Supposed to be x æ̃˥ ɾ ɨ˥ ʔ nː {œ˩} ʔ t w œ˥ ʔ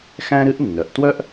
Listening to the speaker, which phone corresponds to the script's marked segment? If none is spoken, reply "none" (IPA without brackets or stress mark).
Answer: œ˩